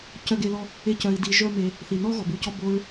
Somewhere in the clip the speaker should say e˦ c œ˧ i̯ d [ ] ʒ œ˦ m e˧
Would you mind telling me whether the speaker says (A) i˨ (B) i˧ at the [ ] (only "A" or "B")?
B